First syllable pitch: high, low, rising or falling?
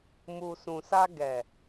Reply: low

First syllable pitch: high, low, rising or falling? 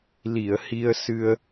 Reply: low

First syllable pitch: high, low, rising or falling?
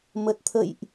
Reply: low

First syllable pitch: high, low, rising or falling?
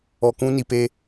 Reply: low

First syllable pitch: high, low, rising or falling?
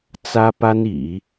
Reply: high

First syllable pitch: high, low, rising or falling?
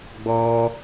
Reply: high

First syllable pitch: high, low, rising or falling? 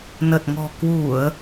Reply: low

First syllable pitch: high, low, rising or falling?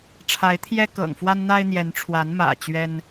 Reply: rising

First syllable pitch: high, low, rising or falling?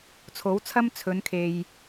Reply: rising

